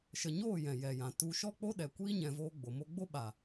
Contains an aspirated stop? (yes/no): no